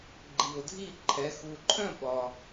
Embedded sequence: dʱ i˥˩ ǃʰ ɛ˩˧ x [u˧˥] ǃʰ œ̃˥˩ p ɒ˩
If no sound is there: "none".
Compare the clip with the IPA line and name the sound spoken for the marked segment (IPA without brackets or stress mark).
u˩